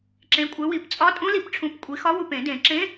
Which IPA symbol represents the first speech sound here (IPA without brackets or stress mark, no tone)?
ǁ